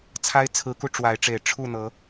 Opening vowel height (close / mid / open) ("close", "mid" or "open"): open